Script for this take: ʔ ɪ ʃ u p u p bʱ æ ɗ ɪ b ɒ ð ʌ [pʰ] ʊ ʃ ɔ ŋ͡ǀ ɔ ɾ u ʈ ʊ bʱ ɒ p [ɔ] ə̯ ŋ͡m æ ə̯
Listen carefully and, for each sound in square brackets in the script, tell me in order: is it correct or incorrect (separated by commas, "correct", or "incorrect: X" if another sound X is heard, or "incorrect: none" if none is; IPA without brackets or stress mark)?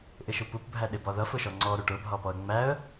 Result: incorrect: f, correct